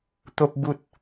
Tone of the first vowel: high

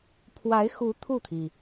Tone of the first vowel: rising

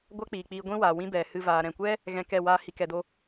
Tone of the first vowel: high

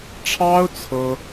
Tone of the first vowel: high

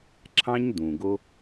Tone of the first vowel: high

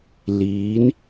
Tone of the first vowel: rising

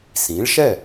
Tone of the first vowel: rising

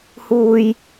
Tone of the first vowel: high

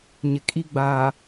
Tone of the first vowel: low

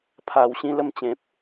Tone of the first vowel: low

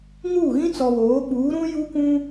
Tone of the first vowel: falling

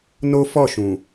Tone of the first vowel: high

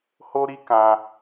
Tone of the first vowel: high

